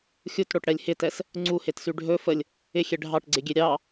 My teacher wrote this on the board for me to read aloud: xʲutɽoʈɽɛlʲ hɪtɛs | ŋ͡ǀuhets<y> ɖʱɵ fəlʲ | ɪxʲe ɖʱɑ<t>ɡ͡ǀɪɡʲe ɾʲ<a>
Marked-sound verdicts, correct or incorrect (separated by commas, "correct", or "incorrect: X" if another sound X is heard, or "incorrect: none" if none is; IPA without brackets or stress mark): correct, incorrect: ʈ, incorrect: ɑ